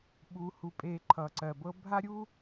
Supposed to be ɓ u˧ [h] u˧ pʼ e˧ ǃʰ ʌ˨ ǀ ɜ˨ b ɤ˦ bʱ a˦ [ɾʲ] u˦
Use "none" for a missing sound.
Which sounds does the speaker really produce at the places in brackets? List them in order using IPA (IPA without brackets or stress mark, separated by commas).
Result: h, ɾʲ